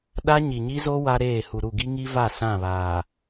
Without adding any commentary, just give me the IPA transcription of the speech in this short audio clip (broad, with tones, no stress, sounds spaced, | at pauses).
ɗ a˦ ɲ i˨ ɲ i˦ z o˦ w a˦ ɾ eː˦˨ h u˨ ɾ u˦˨ ɡ i˦ ŋ i˦ v a˦˨ s ã˦˨ β aː˨